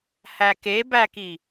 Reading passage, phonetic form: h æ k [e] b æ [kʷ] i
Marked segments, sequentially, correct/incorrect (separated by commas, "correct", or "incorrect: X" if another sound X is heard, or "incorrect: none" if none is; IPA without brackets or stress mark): correct, incorrect: k